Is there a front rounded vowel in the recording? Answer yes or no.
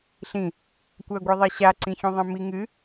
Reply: no